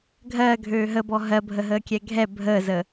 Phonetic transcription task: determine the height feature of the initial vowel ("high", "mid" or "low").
mid